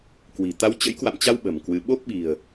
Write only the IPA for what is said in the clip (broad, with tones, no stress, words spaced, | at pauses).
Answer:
kwi̤˨˩ t̪a˨˦wt͡ɕə̰˧˥jkwa̰˧˨mt͡ɕa˧w ɓə̤˨˩mkwɨ˨˦ ɓo˦˥p̚ɓi̤˨˩ə̯